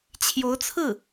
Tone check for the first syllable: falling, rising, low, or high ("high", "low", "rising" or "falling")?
rising